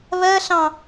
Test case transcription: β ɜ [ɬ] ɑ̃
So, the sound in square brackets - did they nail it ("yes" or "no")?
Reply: yes